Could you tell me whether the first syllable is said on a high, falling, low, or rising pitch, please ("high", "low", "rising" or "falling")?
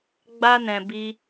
high